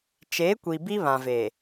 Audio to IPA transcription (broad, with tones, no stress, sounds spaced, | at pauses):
t͡ʃ eː˨˦ kʷ i˨ b i˦ β ã˨ v eː˨